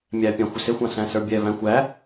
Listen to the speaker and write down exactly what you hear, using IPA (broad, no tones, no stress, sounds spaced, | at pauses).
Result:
mʲ æ pʲ ɑ̃ xʷ ɪ s ɪ xʷ ɑ̃ s æ̃ s ə˞ bʲ ɛ v æ̃ xʷ æ